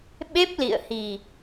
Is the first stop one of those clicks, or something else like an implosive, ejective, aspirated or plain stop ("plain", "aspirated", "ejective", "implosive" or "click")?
implosive